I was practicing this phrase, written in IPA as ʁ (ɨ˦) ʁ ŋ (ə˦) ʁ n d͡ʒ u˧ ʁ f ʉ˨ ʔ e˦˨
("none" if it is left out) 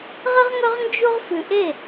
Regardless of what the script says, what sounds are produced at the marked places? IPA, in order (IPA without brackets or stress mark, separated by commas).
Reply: ɨ˦, ɵ˦